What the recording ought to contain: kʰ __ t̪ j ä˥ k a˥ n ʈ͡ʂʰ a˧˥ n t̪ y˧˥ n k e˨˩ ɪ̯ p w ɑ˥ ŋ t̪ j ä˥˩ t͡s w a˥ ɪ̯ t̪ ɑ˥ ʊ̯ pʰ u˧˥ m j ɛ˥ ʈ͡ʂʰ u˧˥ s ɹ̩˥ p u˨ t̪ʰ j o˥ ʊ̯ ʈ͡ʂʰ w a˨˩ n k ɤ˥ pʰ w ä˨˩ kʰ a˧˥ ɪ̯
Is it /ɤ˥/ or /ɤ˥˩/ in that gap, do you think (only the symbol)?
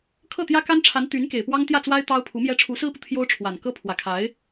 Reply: ɤ˥˩